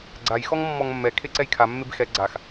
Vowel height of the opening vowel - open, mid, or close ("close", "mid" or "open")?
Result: open